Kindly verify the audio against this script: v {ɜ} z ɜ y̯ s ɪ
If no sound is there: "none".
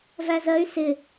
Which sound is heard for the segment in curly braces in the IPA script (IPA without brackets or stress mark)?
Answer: æ